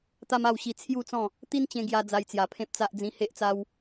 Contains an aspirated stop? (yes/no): yes